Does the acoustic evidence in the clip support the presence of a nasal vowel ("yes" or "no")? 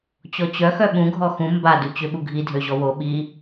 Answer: yes